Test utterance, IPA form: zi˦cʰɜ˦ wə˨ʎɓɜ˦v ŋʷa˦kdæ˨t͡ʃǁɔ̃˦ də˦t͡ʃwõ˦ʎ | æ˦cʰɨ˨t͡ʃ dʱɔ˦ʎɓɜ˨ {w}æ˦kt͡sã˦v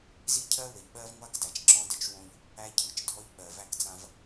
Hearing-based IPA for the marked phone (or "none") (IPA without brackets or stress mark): v